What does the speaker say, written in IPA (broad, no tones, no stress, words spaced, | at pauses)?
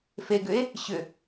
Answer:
feɡʏe̯ | ɕʏ